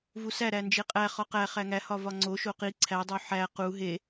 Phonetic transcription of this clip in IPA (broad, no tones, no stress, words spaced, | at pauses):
vusæ ɾænd͡ʒeqʼæ χɒqæ χæŋæ hɒvɒŋ͡ǀo ʃoqi ǀʰæ dˤoħæ qu ɦe